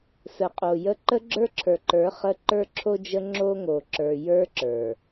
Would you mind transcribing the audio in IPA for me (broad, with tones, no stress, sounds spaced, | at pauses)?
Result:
s ə˨ qʼ o˨ j ə˦ ǃ ə˦ ɡ͡ǁ ə˞˦ ǁʰ ə˞˨ ǃ ə˞˨˦ χ ə˦ ǃ ə˞˦ ǁʰ o˦ d͡ʒ ə˦ ŋ͡ǁ o˦ ŋ o˨ ǁ ə˞˨ j ə˞˦ ǁ ə˞˨